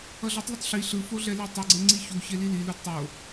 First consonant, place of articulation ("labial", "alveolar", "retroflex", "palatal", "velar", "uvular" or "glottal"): alveolar